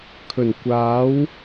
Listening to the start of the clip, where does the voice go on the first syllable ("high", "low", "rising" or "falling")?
low